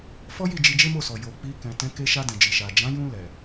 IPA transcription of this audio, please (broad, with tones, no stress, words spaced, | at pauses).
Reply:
fɔ˦ji˦˨ d͡ʒi˧d͡ʒe˦mo˦˨sɔ˨ jo˨ k͡pi˧ kɛ̃˨tɛ̃˨˦ ke˧ʃa˧dɛ̃˨d͡ʒi˨ ʃa˨ d͡ʒã˨˦jũ˧ lɛ˨